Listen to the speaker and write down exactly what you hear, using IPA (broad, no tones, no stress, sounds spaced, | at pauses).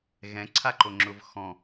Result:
ɣ ɛ̃ ǀʰ a ǃ o ŋ͡ǁ ʊː v x ɔ̃